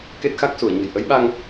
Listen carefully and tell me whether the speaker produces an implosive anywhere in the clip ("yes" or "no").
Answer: yes